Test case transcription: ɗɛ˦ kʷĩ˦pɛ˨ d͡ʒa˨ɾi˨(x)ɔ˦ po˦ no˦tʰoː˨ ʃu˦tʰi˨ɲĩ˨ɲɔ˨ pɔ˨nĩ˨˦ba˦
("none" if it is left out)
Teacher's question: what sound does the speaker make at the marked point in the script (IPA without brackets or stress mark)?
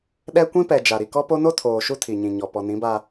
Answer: k